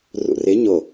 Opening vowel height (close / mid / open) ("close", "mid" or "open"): close